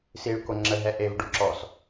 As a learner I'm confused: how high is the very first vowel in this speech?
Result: high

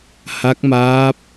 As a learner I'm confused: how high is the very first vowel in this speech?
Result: low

